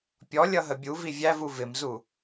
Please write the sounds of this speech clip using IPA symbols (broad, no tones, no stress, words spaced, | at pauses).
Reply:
pʲɔlʲʌɦə bʲuvi vʲævu vɪmzu